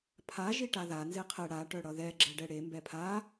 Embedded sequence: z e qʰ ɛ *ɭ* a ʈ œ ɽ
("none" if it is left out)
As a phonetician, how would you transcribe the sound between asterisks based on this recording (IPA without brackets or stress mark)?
ɽ